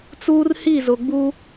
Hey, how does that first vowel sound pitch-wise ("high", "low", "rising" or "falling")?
high